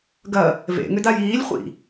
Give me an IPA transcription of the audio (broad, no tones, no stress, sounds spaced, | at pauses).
ɡ ɐ | v ḛ ŋ ʏ d a j iː lʲ χʷ ḭ